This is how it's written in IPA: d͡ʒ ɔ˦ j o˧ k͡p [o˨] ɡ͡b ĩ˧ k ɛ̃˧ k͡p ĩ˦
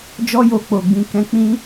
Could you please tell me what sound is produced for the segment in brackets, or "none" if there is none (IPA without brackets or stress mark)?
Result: o˨